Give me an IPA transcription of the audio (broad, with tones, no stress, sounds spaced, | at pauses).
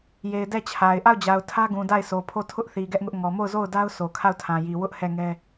j e˨ ɪ̯ d ɛ˦˨ t͡ɕʰ a˨ ɪ̯ ʔ a˦˨ ʊ̯ d͡ʑ a˨ ʊ̯ tʰ ä˦ ɡ ũ˨ d a˦˨ ɪ̯ sʰ o˨ pʰ o˦˨ tʰ ʊ˦ ʔ θ i˨ ɡ ɛ˦ ʔ ŋ ʊ˦ ʔ ŋ ɔ˨ m o˦˨ ʊ̯ z o˦˨ ʊ̯ d a˦ ʊ̯ s o˨ kʰ a˦˨ ʊ̯ tʰ ã˨ j i˨ w ʊ˦ ʔ h ɛ˦˨ ŋ ɛ˦